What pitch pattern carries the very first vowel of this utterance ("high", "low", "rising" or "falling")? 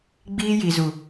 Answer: high